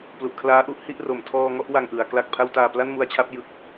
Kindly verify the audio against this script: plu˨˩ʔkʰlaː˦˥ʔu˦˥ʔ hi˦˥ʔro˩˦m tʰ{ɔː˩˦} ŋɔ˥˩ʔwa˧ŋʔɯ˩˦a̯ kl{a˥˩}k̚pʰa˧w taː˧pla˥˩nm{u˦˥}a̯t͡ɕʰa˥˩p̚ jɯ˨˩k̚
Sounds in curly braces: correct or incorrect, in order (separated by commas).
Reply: incorrect, incorrect, incorrect